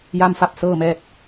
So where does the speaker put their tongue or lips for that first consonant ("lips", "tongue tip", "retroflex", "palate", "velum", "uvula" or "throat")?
palate